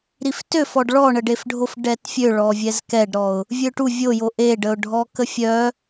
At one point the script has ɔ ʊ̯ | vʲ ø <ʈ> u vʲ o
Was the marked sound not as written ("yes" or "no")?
no